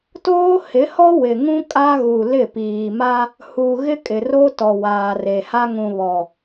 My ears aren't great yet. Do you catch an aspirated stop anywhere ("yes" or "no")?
no